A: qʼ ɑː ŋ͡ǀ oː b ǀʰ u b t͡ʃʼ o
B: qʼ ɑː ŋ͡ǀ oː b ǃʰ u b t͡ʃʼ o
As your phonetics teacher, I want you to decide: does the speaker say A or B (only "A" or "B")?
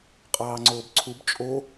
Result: A